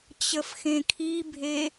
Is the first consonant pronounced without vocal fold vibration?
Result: yes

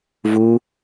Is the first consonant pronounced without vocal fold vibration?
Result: no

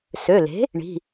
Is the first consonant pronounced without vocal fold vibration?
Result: yes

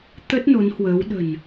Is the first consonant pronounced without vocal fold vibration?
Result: yes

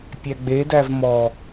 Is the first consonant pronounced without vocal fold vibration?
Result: yes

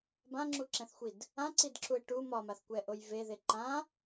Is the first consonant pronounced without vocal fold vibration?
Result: no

